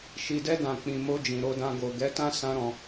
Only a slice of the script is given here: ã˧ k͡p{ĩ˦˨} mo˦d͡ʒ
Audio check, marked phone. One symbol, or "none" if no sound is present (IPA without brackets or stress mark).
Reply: ĩ˧